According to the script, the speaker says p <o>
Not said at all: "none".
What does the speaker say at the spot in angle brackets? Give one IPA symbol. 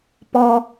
ɔ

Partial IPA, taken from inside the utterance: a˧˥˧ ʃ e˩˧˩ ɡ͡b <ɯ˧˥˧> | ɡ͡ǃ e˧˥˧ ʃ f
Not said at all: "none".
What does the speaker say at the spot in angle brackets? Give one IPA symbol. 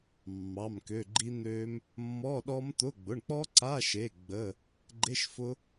ə˧˥˧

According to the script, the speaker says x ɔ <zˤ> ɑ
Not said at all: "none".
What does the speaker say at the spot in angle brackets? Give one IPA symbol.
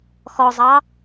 zˤ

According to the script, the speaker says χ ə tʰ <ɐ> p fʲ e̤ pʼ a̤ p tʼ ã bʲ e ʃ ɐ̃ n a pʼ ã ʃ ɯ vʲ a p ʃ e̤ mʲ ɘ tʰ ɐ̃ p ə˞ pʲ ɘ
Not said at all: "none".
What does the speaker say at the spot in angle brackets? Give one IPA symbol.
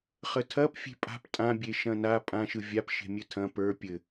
ɐ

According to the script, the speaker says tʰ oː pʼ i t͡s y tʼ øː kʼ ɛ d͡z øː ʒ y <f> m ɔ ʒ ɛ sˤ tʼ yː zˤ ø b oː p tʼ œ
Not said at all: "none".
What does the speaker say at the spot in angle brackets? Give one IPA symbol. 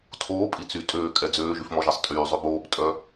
f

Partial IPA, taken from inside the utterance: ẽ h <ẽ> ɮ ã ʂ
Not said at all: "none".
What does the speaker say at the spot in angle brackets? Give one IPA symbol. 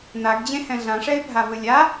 ɛ̃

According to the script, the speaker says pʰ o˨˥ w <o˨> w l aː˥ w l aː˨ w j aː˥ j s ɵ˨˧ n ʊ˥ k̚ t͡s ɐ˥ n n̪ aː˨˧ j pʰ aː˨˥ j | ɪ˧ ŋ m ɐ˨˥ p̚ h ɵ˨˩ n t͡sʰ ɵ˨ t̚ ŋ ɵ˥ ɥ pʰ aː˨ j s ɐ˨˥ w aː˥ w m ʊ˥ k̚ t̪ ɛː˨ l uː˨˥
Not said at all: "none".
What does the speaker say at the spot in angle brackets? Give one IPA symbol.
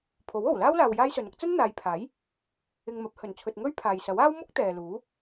o˨˩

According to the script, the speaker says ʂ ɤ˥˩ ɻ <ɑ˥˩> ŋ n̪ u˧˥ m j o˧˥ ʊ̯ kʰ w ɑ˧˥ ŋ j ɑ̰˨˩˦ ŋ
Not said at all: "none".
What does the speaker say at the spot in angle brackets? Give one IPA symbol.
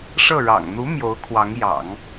ɑ̰˨˩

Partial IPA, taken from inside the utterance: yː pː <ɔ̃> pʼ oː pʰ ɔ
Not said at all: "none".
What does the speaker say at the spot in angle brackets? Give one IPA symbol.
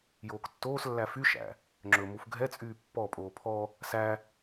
ɔ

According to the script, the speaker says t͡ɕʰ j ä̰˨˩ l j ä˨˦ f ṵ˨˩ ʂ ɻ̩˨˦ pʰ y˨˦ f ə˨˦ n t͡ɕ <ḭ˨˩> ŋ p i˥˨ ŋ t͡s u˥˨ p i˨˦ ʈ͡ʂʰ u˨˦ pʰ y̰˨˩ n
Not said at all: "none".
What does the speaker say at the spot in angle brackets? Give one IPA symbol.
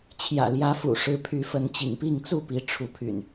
ḭ˨˩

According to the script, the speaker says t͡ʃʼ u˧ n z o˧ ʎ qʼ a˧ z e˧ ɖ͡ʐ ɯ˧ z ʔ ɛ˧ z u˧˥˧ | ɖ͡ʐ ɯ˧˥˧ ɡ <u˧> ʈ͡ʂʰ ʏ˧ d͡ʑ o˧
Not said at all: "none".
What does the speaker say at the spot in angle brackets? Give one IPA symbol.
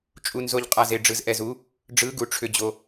u˧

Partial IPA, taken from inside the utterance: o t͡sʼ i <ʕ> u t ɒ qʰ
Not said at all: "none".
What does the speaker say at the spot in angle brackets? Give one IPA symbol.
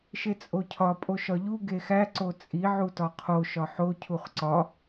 ʕ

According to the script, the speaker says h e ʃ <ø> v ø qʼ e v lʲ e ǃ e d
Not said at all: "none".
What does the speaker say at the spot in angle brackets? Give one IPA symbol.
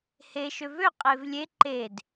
ø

